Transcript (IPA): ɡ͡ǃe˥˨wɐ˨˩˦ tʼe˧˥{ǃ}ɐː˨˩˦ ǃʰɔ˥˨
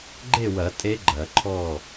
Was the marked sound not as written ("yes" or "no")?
yes